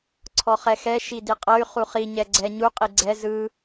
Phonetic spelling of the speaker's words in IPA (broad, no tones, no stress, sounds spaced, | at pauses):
ǀʰ ɔ χ ɛ x ɛ ʃ i d i qʼ ɤ y̯ χ u χ i ɲ ɛ ɡ͡ǀ ɛ ɲ u qʼ i ɡ͡ǀ ɛ z ɯ